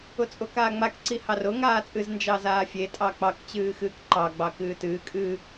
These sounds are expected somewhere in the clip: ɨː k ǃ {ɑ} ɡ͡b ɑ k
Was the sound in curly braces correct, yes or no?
yes